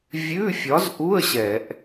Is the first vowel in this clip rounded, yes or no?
yes